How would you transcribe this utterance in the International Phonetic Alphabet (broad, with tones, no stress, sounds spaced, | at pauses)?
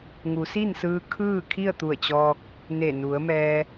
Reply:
ŋ u˩˧ s i˥˨ n s ɯː˧ kʰ ɯː˥˨ kʰ i˥˨ ə̯ t̪ u˧˩ ə̯ t͡ɕ ɔː˧ k̚ | n e˧˩ n u˩˧ ə̯ m ɛː˧